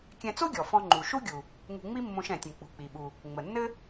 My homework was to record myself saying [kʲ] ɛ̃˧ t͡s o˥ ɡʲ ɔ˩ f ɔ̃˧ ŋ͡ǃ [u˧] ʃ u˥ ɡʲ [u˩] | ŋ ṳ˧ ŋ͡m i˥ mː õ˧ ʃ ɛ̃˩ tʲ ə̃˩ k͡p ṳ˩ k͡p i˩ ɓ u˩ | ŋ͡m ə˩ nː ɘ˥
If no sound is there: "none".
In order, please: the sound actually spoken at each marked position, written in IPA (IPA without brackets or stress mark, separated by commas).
kʲ, u˩, u˩